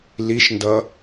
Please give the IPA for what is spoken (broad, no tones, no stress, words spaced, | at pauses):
liʃndʌ